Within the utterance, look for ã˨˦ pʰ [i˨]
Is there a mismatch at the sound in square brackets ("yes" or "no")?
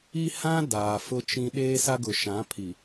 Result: no